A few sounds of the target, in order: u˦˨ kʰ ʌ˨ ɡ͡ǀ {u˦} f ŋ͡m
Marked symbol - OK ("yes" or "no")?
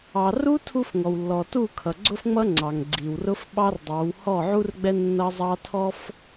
no